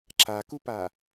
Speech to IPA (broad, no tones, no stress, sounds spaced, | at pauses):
ǁ a k u p a